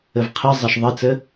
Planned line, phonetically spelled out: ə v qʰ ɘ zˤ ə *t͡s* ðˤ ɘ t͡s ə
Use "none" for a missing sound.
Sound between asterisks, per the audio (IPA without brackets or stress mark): ʃ